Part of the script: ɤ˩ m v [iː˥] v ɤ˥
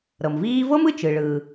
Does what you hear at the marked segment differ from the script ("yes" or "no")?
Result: no